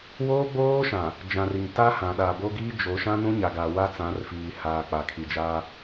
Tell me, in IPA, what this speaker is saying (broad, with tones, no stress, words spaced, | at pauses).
woː˦ɡ͡boː˦ʃã˨ | d͡ʒã˨ri˨ŋ ta˦hã˨ ɗa˨bo˦ ɡiː˦d͡ʒo˨˦ ʃã˦nũ˦ɲa˨ɡa˨ wa˦t͡sã˨˦rfiː˨ haː˨ k͡pa˨kʰi˨ d͡ʒaː˦